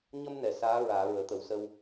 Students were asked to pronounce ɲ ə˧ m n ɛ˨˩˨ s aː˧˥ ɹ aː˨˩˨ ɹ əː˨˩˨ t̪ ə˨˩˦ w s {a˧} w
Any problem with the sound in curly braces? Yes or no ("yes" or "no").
yes